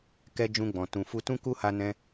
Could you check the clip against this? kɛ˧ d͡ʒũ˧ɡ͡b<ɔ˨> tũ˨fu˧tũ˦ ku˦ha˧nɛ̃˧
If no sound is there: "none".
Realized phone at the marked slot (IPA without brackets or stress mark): ɔ̃˨